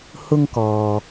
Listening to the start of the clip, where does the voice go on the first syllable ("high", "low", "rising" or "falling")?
high